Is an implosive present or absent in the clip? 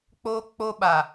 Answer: present